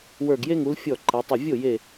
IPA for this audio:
w ə˞˧˩ ɡ j e˥ ŋ u˨˦ l fʲ ɔ˥˩ ǃ ɛ˨˦ tˤ ə˧˩ vʲ o˥˩ j e˧˩

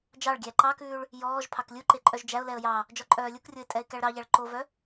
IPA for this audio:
d͡ʒ ɑ ɭ ɡʲ æ ǃ ɑ k ʉː ɭ | j ɔː ʒ pʰ ɑ k lʲ u ǃ e ǃʼ œ ʒ d͡ʒ æ ʊ̯ l ɛ ə̯ j ɑ | d͡ʒ ɔ ǃʼ œː lʲ u k rʲ o ɪ̯ tʼ ɛ ɪ̯ k æ ɭ ɾ ɑ ʎ æ ɭ ǃ o v œ

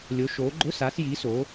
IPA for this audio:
lʲ o˨˦ ʃ oː˨˦ ɡ͡ǃ ʊ˧˥˧ s aː˨˦ s j iː˨˦ s oː˨˦

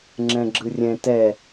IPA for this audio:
ŋ͡ǁ ɛ̃ ɡ͡ǁ ɯ rʲ ɛ̃ t ɛ

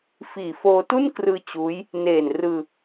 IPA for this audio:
f iː˨˩ f oː˧ t u˥˩ n k r ɯː˧ t͡ɕ uː˦˥ j | n eː˨˩ n r ɯː˧

